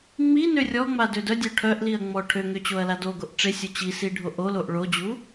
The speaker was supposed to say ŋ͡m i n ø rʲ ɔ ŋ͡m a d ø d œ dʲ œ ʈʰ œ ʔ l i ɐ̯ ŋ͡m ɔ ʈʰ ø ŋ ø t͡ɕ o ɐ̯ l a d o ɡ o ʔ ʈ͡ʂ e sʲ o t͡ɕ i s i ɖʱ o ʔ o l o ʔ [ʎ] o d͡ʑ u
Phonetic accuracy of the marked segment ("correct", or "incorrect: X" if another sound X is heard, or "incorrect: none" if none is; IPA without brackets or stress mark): incorrect: ɭ